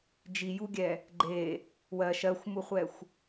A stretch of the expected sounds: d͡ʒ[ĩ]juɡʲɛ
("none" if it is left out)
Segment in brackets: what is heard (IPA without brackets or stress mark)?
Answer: i